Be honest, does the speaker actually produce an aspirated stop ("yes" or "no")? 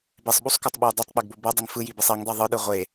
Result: no